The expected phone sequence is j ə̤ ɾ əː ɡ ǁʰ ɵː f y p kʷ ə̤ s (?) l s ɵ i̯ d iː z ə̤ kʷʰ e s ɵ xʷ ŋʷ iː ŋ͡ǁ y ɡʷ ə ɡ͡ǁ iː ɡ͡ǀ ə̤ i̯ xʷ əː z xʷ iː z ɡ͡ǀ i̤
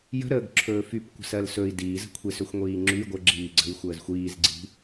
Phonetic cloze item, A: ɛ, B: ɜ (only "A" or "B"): B